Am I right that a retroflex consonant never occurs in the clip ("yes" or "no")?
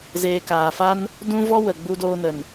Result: yes